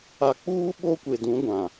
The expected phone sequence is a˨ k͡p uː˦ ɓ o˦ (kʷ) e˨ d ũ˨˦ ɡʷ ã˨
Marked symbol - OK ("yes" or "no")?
yes